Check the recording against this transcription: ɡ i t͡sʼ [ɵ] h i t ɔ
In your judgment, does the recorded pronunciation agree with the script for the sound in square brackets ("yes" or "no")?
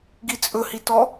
yes